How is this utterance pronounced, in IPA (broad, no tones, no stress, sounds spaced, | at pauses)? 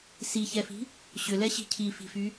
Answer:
s i ç ɛ f i̤ | ɕ ʏ l ɛ ɕ i̤ cʰ i f i̤ f y